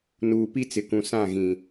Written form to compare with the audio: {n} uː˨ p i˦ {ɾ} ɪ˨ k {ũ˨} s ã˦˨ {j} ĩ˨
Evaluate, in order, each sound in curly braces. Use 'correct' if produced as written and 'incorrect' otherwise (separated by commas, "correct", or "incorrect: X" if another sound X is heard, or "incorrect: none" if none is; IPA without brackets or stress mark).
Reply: correct, incorrect: t͡s, correct, incorrect: ɣ